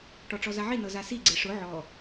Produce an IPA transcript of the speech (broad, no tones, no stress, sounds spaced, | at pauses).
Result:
ʈ ɔ ʈ͡ʂ ɔ z a ʕ i n ɤ z a s i ɡ͡ǀ e ʂ ʊ ʕ ɔ